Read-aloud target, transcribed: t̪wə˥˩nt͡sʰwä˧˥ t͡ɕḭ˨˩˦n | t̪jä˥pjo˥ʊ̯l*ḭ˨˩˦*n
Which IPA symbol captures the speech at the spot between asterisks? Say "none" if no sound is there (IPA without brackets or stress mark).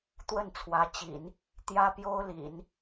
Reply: ḭ˨˩˦